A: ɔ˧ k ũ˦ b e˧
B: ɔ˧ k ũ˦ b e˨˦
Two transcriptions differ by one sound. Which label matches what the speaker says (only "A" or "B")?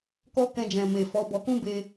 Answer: A